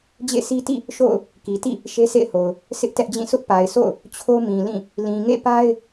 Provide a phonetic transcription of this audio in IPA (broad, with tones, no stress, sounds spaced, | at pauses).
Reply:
d͡ʑ ḛ˦˨ sʰ i˦ t ḭ˦˨ | ʃ o̰˦˨ ʊ̯ | k i˨ t ḭ˦˨ | ʃ e˦ sʰ ḛ˦˨ ɪ̯ h o˨ ʊ̯ | sʰ ɪ˦ ʔ t ɛ˦ ʔ d͡ʑ ĩ˦˨ sʰ ʊ˦ ʔ p a˨ ɪ̯ sʰ o̰˦˨ ʊ̯ | t͡ɕʰ o˦ m ĩ˨ l ĩ˦˨ | l ĩ˨ ŋ ḛ˦˨ p a˦ ɪ̯